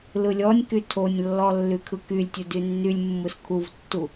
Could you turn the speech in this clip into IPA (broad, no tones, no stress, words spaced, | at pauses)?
lɯlʲɔnʲky tʰonʲlːɔ lːykʰɯkylʲtʲɯ dynːylʲmːɯs kʰuvtːu